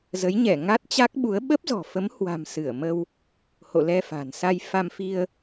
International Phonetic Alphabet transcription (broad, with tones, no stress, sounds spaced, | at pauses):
z ə˨˦ j ɲ ɛ˧˩ ŋ a˦˥ t̚ t͡ɕ a˦˥ k̚ ɓ u˨˦ ə̯ ɓ ə˦˥ p̚ z ɔ̤˨˩ f ə˨˦ m h w a̤˨˩ m s ɨ˧˩ ə̯ m ə˧ w | h o̰˧˨ l ɛ˧ f a̤˨˩ n s a˧ j f a˧ m f i˧ ə̯